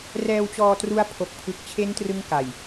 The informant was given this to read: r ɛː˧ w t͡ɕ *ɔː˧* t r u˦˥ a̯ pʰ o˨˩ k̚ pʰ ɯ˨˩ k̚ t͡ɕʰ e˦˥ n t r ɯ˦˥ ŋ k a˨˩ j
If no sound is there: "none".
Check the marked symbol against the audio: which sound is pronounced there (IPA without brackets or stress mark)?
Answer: ɔː˧